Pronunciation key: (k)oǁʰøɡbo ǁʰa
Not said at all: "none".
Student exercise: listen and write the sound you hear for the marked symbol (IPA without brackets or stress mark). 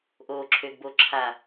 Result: ʔ